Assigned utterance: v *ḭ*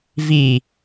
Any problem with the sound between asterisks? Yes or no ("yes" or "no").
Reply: yes